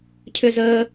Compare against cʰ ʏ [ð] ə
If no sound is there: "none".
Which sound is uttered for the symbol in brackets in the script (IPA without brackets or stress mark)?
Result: z